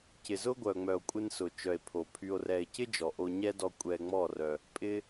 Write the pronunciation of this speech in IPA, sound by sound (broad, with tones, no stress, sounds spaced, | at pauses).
c ɪ˨ z ʊ˦ ɡʷ œ˨ ŋ͡m œ˨ o̯ kʷʼ ɪ˧ n s ʊ˨ t͡ʃ œ˨ e̯ pʰ o˨ pʰ y˧ o̯ r ɛ˧ e̯ c ɪ˦ d͡ʒ ɔ˨ ʔ o˧ ɲ ɛ˦ d ɔ˧ kʷʼ ɛ˧ ŋ͡m ɔ˦˨ r œ˧ | pʼ ɪ˦